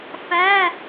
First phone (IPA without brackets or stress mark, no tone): f